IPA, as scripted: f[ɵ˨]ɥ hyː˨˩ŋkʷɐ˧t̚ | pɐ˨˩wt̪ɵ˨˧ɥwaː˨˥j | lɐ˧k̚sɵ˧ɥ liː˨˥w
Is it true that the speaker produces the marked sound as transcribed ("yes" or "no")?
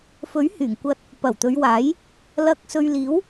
no